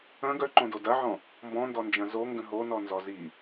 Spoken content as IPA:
ɐ̃ ɡ œ ǃ õ d o d ɐ ʕ ɔ̃ | m b ɔ̃ n d ɔ n d͡ʒ ɐ̃ z o ŋ ɡ ə̃ ɦ o n ɔ n z ɔ z i

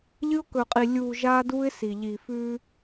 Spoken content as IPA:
ʎ ɨ˦ ʊ̯ k ɵ˨ qʼ i˨ lʲ uː˨ ʒ aː˦ d uː˦ ɪ̯ s i˨ ʎ iː˨ f ʉː˦

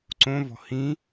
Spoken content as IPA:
ǀ õ v ɔ̤ h ĩ

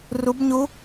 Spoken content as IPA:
r u˦˥ b ɲ u˦˥

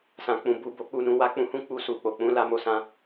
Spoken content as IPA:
s ã˨ k͡p ũ˨ b u˧ b o˧ k͡p u˧ n ũ˧ w a˦ k͡p ũ˧ h ũ˦ k͡p u˧ s u˨ k͡p o˨ k͡p ũ˨˦ l a˧ m o˧ s ã˦

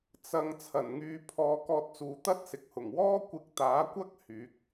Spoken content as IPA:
t͡s ɐ˧ ŋ t͡sʰ ɐ˨˩ n ŋ yː˨˧ pʰ ɔː˨˧ k ɔː˧ t̚ t͡s uː˨˧ t̪ ɐ˥ t̚ s ɪ˨ k̚ h ʊ˨˩ ŋ w ɔː˥ kʷ ɪ˧ k̚ t̪ aː˨˥ kʷ ɐ˥ k̚ h yː˨˥ k̚

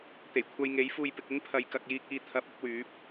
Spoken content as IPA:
t̪ e˨˩ j kʷʰ ɐ˧ j ŋ e˨˥ j f uː˧ j p ɪ˨ k̚ ɪ˥ ŋ pʰ ɐ˨˧ j k ɐ˨ k̚ j iː˧ k̚ iː˧ t̪ʰ ɐ˨˥ p̚ ʊ˨˥ k̚ w yː˨˥ p̚

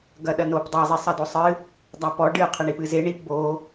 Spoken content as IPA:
ɡ ɐ ɗ ɐ n o p dˤ ɛ zˤ i sˤ ɐ d o sˤ ɨ | dˤ a p ɔ ɖ ɨ qʰ ɘ ɳ i p ɨ z e ɳ i p b o

